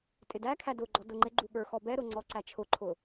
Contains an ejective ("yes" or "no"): yes